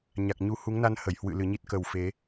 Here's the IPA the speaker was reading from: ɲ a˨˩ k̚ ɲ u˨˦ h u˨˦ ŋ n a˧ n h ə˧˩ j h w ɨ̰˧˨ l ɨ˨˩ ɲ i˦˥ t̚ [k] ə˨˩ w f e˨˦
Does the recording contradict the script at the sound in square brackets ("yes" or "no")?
no